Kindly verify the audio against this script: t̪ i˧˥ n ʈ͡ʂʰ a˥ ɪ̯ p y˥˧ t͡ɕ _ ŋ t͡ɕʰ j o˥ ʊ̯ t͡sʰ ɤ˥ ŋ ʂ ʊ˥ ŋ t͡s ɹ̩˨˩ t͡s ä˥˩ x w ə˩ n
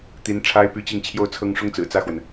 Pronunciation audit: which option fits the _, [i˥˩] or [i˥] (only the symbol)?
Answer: i˥˩